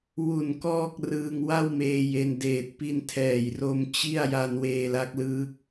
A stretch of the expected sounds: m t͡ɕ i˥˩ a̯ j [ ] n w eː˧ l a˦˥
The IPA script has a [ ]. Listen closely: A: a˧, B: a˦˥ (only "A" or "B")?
A